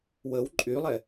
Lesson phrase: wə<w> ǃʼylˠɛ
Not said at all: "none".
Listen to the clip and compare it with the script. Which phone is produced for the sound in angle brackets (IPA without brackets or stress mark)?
w